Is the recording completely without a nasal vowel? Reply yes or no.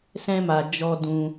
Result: no